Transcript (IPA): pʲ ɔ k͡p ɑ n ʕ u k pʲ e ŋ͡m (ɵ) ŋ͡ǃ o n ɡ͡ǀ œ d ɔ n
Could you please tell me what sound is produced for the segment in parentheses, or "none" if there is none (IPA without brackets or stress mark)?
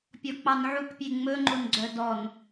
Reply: ɵ